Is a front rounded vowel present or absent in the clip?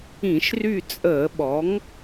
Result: present